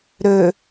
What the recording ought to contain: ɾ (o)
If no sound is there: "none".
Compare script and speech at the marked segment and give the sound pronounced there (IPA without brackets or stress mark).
ɵ